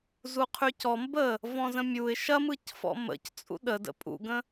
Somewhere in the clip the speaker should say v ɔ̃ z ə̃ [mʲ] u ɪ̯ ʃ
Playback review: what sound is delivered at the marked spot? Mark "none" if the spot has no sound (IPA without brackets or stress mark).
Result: mʲ